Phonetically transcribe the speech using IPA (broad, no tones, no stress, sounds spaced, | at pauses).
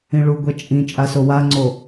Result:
ĩ ɭ u ɡʷ ɛ t͡ʃʼ ĩ t͡ʃʼ a s o w a ŋ͡ǀ o